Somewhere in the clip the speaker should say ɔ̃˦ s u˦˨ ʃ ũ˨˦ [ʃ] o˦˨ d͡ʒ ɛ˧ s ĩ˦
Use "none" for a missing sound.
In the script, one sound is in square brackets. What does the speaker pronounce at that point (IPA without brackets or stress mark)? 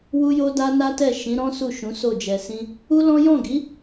s